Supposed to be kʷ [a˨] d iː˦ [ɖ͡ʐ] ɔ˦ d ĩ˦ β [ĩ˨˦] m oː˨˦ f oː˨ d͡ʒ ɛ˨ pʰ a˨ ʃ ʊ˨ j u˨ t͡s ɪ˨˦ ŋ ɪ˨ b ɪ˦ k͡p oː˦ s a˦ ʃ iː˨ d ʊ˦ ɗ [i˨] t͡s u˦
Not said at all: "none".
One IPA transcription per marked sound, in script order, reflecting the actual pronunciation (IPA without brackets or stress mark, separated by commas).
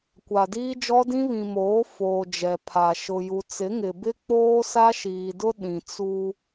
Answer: a˨, d͡ʒ, ĩ˨, ĩ˨